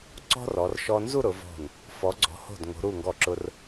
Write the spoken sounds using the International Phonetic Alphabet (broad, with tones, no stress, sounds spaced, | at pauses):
ǀ ɔ̤˥ r ɔ˩˧ r ʃ ɔ˧ n z u˥˧ ɾ ʊ˩˧ v ɔ̤˧˩ n | f ɔ˩˧ ɡ͡ǀ ɔ̤˩˧ h o̤˧˩ d ŋ o̤˩˧ ɾ u˧˩ ŋ ɡ ɔ˧˩ ǁ ʊ˧ r